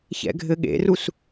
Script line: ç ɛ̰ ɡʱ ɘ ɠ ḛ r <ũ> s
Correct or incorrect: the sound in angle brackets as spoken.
incorrect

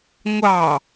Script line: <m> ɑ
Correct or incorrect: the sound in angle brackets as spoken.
incorrect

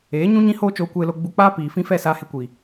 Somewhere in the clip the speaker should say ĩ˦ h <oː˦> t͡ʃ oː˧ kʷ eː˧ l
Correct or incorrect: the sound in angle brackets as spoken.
correct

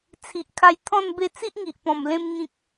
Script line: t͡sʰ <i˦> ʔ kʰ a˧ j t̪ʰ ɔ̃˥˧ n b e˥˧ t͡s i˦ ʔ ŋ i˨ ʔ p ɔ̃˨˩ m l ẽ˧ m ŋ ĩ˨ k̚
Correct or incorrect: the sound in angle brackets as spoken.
incorrect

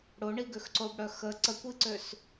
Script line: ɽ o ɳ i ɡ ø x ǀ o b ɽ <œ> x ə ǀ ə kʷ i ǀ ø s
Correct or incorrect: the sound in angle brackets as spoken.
correct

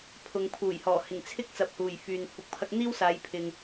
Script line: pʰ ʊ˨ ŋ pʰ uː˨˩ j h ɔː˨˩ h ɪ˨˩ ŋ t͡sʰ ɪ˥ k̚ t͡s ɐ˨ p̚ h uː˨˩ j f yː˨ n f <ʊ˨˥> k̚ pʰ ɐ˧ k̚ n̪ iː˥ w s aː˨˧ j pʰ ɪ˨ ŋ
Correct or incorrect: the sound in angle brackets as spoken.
incorrect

